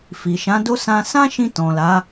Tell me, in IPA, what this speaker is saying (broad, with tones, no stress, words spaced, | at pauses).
fi˨ʃã˨˦do˦ sã˧sã˦ʃĩ˧ tɔ̃˨la˨˦